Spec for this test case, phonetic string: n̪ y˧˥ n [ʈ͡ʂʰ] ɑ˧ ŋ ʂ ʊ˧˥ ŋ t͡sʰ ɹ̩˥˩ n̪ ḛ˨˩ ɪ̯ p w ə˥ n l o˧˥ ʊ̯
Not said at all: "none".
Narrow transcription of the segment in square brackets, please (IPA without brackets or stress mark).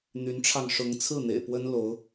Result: ʈ͡ʂʰ